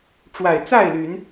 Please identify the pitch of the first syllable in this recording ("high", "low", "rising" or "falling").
low